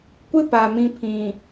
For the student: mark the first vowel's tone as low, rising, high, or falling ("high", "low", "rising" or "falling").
high